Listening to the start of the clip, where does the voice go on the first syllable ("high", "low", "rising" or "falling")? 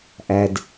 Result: low